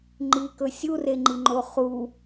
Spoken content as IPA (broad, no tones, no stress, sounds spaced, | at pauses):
ŋ͡ǃ i k ɵ sʲ u r e ŋ͡ǃ i ŋ͡ǃ o χ u